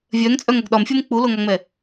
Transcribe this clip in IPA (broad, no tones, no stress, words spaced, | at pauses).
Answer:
vʲœŋ t͡sʼœŋɐɡɗɒmfʲom k͡puloŋɒŋ͡mɛ